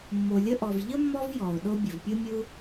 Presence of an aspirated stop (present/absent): absent